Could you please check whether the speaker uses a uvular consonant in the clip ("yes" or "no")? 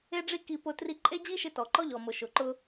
no